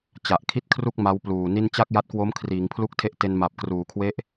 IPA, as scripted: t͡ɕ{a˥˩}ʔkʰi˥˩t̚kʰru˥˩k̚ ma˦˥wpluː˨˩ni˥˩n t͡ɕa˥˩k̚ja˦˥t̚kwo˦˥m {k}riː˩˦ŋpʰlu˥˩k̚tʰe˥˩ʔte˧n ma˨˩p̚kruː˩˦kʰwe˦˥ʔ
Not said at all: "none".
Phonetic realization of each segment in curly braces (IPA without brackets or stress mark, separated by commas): a˨˩, kʰ